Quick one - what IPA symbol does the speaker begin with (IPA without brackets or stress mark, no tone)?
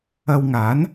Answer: ɐ